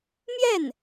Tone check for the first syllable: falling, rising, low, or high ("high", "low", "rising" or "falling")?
falling